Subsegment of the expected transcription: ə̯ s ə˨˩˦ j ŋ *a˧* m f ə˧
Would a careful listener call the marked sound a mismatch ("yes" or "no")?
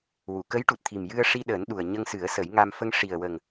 no